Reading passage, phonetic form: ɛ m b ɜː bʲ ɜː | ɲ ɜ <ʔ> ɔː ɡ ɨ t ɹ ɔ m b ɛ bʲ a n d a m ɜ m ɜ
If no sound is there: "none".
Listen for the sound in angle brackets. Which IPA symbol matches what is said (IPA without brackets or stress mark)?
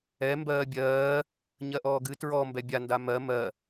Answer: ʔ